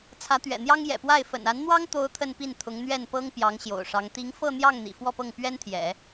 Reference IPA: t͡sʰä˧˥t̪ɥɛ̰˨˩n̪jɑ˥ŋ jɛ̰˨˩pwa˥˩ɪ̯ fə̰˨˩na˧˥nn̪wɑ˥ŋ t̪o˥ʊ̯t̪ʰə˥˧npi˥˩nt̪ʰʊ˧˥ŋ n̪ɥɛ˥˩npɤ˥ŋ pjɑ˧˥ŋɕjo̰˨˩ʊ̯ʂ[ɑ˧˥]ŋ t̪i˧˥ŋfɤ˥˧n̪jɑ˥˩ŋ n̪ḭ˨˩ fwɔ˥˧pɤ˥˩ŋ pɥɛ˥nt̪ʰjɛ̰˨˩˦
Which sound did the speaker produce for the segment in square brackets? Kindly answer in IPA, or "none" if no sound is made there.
ɑ˧˥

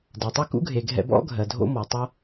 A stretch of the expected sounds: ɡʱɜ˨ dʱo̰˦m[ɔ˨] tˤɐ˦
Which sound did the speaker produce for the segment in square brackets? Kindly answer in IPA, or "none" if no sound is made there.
ɔ˨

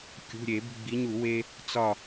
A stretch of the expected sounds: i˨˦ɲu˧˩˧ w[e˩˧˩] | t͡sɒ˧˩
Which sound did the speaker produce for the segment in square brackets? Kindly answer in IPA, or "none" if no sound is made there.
e˦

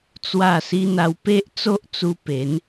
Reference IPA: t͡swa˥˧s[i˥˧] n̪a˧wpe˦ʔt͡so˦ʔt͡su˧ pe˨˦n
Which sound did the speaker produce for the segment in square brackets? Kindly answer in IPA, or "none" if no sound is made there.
i˦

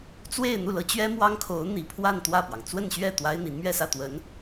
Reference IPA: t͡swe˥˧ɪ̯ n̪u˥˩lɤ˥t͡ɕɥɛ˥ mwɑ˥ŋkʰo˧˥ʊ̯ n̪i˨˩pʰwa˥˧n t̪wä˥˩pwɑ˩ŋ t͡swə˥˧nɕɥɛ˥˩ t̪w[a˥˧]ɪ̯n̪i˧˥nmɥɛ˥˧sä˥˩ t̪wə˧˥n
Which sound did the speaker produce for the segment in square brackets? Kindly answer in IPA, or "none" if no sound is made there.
a˥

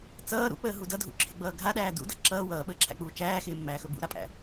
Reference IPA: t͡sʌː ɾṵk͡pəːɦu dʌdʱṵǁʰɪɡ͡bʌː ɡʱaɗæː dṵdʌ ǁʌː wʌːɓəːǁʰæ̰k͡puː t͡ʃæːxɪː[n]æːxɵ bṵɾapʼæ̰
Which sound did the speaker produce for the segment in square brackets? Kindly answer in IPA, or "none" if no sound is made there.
mː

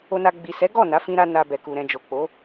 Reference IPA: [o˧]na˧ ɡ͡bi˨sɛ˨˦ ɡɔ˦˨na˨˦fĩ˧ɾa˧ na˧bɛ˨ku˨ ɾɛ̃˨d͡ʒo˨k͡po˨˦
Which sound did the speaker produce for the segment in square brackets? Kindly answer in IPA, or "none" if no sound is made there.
o˧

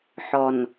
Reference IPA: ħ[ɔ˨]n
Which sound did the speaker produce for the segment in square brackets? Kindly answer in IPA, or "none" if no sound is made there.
ɔ˨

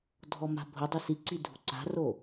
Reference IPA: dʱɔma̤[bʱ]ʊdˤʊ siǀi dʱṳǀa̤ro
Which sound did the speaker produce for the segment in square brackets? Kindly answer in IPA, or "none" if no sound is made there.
bʱ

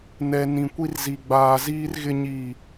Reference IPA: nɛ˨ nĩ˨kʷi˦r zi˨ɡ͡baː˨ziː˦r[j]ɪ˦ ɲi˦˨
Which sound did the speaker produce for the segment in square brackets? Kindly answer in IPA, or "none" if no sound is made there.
ɣ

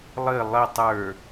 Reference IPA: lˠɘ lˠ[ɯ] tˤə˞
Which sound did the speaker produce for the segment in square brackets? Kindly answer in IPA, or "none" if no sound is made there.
ə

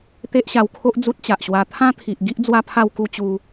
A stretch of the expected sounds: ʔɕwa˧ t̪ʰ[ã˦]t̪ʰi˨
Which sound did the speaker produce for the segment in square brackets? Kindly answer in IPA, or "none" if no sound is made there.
ã˦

